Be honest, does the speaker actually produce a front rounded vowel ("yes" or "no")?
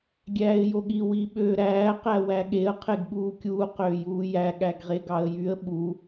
yes